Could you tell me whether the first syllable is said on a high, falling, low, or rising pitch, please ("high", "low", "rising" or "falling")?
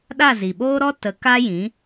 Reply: falling